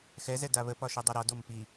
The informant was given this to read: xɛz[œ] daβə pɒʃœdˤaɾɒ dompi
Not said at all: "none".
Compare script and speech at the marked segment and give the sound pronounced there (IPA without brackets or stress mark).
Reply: ɛ